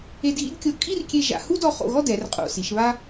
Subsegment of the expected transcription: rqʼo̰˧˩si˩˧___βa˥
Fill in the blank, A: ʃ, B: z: A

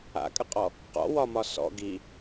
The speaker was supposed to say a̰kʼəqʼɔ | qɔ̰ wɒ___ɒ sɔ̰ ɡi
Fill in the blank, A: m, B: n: A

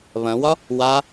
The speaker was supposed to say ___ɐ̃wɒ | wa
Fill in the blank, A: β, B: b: A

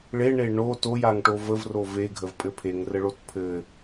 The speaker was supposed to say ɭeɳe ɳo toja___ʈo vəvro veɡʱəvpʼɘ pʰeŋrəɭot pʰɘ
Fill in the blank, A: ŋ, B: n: A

